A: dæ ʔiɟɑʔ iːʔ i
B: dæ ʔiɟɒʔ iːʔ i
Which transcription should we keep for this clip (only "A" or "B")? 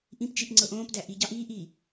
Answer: A